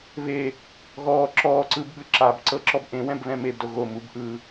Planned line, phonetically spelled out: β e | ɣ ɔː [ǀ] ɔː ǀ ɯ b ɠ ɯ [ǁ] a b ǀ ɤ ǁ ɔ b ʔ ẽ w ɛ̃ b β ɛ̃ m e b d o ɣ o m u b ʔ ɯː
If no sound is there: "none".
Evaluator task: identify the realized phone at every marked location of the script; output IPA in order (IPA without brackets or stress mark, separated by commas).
ǁ, ǁ